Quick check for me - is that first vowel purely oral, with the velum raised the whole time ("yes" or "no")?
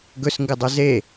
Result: yes